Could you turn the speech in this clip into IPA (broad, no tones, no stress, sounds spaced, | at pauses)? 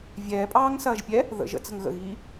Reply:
vʲ ɛː pʼ ɑː ŋ s ɐː ʒ pʲ ɛ | ð ə̰ ʒ ə̰ t͡s ə̤ ŋ ɣ ə̰ ɣ iː